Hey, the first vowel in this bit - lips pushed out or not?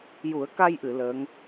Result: yes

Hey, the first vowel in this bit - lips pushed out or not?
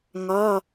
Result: yes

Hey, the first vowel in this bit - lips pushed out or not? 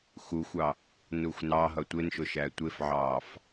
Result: yes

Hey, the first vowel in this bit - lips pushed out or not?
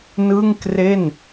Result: no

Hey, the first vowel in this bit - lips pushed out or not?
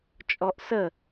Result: yes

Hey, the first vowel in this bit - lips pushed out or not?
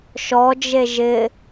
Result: yes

